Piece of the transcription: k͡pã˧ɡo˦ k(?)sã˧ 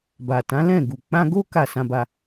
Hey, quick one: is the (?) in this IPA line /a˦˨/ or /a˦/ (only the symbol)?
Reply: a˦˨